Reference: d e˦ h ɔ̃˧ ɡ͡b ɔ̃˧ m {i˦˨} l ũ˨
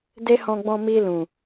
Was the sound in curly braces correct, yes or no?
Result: no